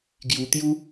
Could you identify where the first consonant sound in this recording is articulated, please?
velar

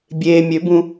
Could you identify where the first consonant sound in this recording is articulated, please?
labial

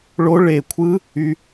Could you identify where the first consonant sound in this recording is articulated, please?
retroflex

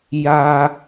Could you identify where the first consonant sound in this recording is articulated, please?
palatal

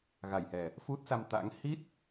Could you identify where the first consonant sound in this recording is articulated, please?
velar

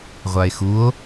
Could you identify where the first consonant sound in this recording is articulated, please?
uvular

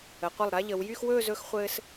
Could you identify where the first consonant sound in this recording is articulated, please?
uvular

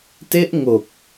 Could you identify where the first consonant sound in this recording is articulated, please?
alveolar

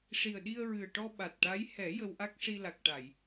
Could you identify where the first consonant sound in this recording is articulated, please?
retroflex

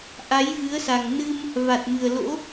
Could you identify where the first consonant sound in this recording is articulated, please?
glottal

